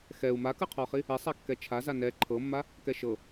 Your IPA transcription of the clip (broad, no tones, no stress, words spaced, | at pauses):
xɛu̯ makɯqʰɔχi | esˤakːɛ t͡ʃʰaza nɛ ǃʰɤmːa | kɛʃɤ